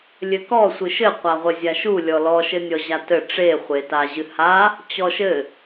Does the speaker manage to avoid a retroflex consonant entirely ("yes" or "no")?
no